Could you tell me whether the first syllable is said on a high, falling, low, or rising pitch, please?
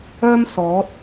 high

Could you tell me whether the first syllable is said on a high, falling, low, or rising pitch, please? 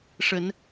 rising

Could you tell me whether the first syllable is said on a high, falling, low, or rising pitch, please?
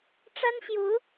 high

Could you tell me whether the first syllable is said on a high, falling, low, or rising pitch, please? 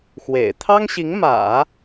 low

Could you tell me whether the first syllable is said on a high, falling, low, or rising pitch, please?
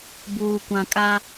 low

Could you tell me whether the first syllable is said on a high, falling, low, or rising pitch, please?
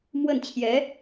falling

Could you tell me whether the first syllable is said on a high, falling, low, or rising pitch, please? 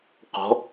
rising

